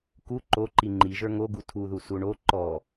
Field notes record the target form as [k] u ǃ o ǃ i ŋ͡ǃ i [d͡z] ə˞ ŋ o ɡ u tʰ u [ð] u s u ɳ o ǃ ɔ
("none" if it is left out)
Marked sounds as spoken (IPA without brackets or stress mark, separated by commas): k, ʒ, ð